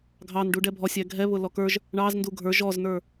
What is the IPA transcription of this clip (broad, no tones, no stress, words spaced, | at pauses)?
ɡʱɑnɖu ɖɛbʱɔ sʲæɡʱɛβʊ lɔkə˞ʒ | ɳɑz nduɡʱə˞ ʒɔznə˞